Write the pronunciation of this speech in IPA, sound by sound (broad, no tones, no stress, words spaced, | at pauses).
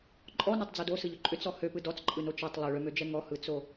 ǃʼɔnɔtˤd͡zo dosɯʎʏ ǃʼʏt͡sɔ høpɯ dɔt͡sǃʼɯno t͡ʃɛtˤ lˠøɭømød͡ʒɛ ŋɔhɯt͡so